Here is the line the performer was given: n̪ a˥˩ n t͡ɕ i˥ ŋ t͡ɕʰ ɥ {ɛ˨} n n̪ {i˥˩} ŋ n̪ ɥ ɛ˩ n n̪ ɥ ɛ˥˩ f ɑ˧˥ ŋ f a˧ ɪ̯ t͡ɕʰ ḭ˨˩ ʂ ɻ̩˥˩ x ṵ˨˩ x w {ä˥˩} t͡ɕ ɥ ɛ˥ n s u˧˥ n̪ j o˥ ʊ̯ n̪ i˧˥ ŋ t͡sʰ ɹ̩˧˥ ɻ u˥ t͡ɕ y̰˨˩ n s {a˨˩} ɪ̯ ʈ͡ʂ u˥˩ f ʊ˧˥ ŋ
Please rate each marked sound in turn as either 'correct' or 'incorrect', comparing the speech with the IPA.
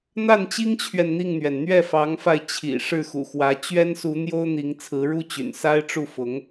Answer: correct, correct, incorrect: ä˧˥, incorrect: a˥

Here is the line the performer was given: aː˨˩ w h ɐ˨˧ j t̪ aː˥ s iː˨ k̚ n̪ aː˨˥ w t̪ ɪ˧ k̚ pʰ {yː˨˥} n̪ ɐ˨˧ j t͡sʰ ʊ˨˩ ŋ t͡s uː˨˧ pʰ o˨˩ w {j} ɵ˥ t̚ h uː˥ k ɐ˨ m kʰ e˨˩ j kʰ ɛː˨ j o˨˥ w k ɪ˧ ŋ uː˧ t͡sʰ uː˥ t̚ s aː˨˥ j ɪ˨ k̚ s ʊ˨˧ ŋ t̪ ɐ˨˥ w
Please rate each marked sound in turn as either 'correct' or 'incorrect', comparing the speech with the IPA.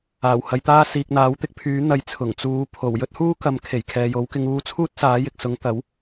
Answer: correct, correct

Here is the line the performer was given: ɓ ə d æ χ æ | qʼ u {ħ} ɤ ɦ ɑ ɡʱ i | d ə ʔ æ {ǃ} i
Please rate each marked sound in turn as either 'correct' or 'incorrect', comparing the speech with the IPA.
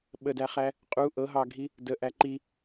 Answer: incorrect: ʔ, correct

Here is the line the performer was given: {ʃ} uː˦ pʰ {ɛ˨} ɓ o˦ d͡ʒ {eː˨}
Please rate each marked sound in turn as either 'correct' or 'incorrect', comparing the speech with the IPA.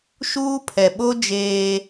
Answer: correct, correct, incorrect: eː˦

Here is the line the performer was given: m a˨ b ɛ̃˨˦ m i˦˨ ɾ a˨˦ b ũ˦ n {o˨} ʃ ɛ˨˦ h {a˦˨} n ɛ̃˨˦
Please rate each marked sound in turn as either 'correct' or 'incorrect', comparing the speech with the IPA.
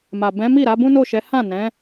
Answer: incorrect: o˦˨, incorrect: ã˦˨

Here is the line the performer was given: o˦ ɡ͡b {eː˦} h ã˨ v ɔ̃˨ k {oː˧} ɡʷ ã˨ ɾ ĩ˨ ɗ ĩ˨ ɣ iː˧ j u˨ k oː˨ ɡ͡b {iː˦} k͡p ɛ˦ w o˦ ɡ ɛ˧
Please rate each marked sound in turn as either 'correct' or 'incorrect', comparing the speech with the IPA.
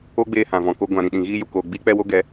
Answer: incorrect: eː˧, incorrect: o˧, correct

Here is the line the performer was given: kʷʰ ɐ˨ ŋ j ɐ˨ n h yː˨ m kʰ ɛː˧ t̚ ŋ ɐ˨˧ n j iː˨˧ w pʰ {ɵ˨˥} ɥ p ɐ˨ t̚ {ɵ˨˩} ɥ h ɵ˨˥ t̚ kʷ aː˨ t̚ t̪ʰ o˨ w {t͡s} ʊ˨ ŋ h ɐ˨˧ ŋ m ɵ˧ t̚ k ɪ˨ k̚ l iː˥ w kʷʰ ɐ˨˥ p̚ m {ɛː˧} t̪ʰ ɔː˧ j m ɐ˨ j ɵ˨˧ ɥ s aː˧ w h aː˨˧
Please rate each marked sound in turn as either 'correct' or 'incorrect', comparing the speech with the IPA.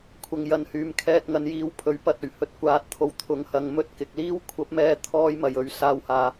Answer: correct, correct, incorrect: t̪ʰ, correct

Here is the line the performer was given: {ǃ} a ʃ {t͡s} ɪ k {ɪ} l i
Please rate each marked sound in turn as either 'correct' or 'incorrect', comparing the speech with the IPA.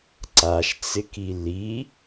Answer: incorrect: ǀ, correct, incorrect: i

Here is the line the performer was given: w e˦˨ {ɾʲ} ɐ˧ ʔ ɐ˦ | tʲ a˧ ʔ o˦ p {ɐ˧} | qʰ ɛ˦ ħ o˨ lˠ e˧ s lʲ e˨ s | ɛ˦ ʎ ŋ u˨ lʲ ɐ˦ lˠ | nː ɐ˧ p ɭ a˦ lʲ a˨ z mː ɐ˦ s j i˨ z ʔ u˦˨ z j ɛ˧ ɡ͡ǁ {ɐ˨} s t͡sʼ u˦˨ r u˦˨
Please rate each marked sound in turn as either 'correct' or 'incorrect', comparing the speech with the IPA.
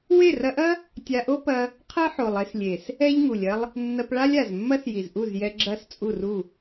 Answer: incorrect: r, incorrect: ɐ˦, incorrect: ɐ˦˨

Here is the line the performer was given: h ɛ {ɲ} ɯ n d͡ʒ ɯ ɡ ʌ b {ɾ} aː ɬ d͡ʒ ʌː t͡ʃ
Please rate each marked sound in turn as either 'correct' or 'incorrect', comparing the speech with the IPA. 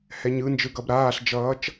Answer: correct, correct

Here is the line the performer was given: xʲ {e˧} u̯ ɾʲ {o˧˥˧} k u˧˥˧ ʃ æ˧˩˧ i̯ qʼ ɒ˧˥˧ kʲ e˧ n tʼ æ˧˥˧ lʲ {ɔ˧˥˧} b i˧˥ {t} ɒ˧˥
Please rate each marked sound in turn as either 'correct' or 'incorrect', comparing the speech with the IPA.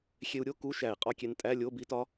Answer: correct, correct, incorrect: o˧˥˧, correct

